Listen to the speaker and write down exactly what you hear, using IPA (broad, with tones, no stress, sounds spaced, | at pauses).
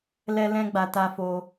l ɛ˦ l ɛ̃˦ ɡ͡b a˧ t a˦ f o˦